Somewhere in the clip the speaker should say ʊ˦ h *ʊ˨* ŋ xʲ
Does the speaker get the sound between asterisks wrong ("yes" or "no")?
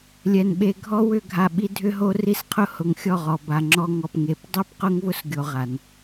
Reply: no